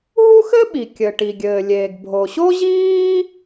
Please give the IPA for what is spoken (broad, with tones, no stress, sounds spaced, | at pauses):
ɦ u˥ x ɘ˥ ɓ i˩ kʲ ɘ˩ ʈ i˩ ɡʲ ɘː˩ lʲ eː˩ ɡ bʱ o˩ ɕ o˥ ʑ iː˥